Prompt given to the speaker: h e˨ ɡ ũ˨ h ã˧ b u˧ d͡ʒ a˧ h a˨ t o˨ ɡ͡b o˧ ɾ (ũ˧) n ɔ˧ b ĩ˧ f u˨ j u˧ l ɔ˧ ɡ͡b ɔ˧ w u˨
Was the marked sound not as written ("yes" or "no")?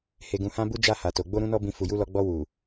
no